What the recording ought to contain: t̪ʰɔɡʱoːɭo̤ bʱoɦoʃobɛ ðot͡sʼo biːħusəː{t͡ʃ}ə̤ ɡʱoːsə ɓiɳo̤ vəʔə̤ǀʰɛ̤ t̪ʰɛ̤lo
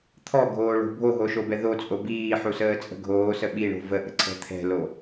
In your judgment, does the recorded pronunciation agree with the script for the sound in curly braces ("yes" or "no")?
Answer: no